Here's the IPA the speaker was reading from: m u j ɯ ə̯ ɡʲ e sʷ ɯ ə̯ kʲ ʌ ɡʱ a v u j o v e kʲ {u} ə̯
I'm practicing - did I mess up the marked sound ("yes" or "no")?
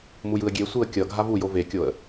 yes